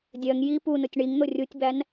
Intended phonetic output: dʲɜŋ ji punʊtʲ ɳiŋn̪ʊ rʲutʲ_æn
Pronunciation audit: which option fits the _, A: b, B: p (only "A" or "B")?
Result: A